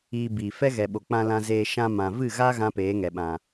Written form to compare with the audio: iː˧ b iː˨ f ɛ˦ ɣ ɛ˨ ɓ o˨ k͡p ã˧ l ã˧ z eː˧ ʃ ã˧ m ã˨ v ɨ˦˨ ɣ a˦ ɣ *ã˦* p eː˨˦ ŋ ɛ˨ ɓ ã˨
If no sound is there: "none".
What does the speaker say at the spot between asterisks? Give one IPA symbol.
ã˦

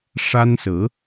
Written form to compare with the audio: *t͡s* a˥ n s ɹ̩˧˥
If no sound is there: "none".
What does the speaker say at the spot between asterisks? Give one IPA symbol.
ʂ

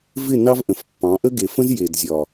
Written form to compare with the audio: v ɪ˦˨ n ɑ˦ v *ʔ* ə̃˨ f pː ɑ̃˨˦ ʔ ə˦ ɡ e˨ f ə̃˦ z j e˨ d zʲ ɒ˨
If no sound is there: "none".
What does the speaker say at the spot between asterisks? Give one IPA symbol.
ʔ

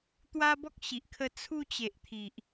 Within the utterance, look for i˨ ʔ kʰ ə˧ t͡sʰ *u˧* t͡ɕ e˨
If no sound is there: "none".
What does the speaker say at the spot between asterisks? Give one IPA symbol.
u˧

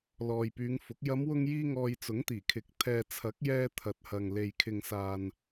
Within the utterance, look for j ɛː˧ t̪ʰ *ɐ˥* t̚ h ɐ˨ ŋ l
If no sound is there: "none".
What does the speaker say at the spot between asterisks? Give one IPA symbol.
ɐ˨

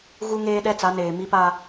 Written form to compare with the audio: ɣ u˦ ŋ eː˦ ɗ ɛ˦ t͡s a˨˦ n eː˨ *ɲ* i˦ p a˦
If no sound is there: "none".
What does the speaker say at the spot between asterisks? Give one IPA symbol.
m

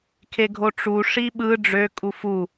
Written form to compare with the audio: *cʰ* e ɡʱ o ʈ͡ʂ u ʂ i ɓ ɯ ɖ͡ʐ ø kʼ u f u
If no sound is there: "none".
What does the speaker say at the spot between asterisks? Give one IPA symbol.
kʰ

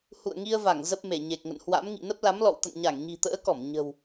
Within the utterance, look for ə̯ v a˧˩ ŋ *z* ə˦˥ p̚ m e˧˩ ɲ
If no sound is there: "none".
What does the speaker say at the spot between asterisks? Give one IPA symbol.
z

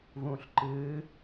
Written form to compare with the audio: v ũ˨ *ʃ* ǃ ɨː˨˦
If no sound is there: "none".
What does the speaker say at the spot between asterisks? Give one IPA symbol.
ɬ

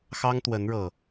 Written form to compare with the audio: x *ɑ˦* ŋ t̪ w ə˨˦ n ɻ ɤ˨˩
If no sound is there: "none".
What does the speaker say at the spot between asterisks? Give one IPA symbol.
ɑ˦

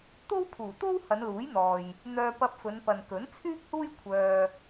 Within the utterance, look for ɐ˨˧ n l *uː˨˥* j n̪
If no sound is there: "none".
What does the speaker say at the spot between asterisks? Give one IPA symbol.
uː˨˥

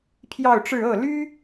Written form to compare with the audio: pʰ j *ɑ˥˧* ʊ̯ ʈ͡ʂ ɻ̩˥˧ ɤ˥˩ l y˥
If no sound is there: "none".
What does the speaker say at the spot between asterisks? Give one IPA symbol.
ɑ˥˧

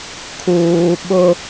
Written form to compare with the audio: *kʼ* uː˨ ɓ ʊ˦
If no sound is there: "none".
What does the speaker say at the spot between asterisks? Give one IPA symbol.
kʰ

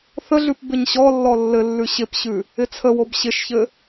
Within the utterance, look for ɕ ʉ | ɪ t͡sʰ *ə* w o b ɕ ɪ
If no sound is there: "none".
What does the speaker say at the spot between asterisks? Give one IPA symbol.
ə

